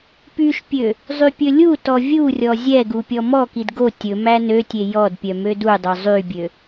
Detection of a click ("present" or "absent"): absent